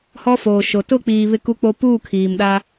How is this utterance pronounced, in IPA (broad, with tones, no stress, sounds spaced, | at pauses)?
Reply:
h ɔ˦ f oː˨ ʃ o˨ t ʊ˦˨ k͡p iː˨ β ɪ˦ k u˦ k͡p o˦ p uː˦˨ kʰ iː˨ m ɗ a˦